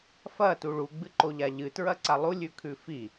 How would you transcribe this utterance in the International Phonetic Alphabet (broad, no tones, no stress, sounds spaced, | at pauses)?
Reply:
f ɐ t u ɭ u ɡ͡b ɨ ǃ o ʎ a ʎ ɨ t ɹ ɐ ǀ a lˠ u lʲ ʉ kʰ ʉ f i